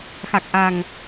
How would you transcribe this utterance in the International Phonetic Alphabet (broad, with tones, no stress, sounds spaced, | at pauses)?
x a˨˩ k̚ ʔ a˨˩ ŋ